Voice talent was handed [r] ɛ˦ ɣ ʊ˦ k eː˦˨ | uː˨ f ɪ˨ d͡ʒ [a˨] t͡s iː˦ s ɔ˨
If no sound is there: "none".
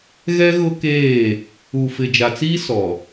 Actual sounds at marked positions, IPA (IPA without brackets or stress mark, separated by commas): ɣ, a˨